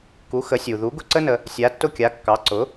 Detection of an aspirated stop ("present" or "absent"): absent